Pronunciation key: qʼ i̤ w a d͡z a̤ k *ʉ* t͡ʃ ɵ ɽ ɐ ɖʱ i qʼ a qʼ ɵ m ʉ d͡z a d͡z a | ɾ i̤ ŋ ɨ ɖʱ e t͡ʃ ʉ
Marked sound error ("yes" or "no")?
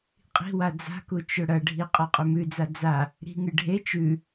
yes